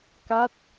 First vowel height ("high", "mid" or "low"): low